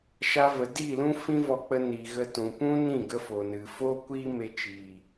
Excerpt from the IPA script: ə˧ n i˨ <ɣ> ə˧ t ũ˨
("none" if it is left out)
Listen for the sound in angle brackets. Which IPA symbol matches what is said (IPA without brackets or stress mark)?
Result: ɣ